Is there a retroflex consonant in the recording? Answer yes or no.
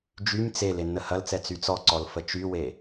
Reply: no